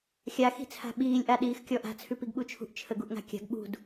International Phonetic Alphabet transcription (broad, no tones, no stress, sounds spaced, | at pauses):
xʲ a x i̤ t͡sʰ a̤ ɓ iː lʲ ʔ a ɗ iː x kʲ ɔ ʔ a̤ t͡sʰ ʉ p i ɡ ɓ u t͡ʃʰ ṳ ʔ t͡ʃʰ ə ɡ u ʔ ŋ a̤ kʲ a̤ ɡ ɓ ṳ d